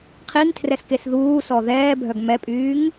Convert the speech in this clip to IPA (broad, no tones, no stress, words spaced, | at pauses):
qʰiŋtʰrɛs kesðuːsɔ ðɛːbʱœɡ mɛpʼyːŋ